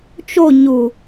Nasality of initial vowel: oral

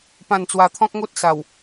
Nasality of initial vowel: nasal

